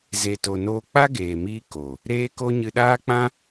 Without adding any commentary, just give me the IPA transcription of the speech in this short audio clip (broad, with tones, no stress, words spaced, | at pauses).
ze˧to˧ noː˧k͡pa˦ɡeː˨miː˧ ko˨ | ɾeː˦ko˦ ɲɨ˧ɗaː˦k͡pã˦